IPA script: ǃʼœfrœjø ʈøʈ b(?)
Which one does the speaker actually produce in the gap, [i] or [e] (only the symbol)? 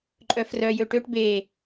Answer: e